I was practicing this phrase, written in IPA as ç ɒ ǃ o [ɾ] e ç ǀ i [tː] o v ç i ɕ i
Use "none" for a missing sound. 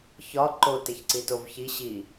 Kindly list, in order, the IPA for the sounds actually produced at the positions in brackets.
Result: t, t

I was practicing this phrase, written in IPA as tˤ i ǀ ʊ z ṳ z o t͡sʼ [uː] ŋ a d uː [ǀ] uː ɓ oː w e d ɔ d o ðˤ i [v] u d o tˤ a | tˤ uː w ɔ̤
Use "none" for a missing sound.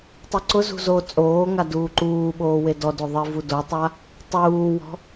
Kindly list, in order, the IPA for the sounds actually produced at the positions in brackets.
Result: oː, ǃ, v

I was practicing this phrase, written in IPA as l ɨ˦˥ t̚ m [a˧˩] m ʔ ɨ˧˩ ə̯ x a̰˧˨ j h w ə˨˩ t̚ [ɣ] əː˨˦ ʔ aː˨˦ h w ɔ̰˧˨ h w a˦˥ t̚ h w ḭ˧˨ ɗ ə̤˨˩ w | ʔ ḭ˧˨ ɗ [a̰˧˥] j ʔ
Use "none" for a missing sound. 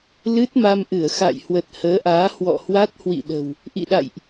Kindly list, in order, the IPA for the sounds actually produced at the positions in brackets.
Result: a˧, h, a̰˧˨

